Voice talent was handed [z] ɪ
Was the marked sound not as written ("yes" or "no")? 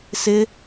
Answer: yes